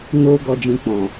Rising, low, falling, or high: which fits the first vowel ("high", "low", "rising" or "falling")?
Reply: low